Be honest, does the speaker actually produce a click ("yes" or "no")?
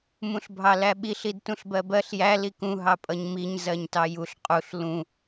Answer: no